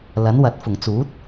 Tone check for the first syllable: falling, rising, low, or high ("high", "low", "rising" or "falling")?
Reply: rising